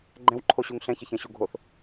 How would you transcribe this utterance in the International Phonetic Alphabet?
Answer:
ɡ͡ǃɛ̃wǃʰoɕuŋ ɬɛ̃çəçɛ̃ ɕuɡʱoθ

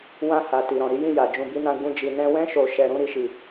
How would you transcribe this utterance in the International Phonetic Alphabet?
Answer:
wã˧ha˨ ti˨ɾɔ̃˨ ɾi˨˦jĩ˦˨ja˨ d͡ʒũ˧bi˦nã˦ ɡ͡bũ˧d͡ʒi˨ nɛ̃˧wɛ̃˦ ʃo˧ʃɛ˧ɾũ˦ ɾi˦ʃi˦˨

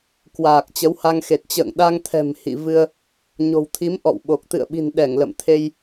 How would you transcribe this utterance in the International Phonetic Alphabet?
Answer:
kwaː˨˩k̚ t͡ɕə˨˦wha˧ŋxe˨˩t̚ t͡ɕə̰ː˧˨ŋɗa˧ŋt̪ʰɛ̤˨˩m hḭ˧˨vɨ˧ə̯ | ɲo̤˨˩wt̪ʰi˨˦m ʔɔ̰˧˨wɓo˨˩k̚ t̪ɨ̰˧˨ə̯ɓi̤˨˩nɗɛ˧˩ŋ lə̰˧˨mt̪ʰe˧j

